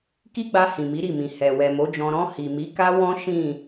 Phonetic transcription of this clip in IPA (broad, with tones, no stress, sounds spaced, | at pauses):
k i˦ ɡ͡b a˧ h ĩ˨ m i˨˦ ɾ i˦˨ m ĩ˨ h ɛ˨ w ɛ˨ m o˨˦ d͡ʒ ɔ̃˧ ɾ ɔ̃˧ h i˨ m i˨˦ k a˦ w ɔ̃˦ ʃ ĩ˦˨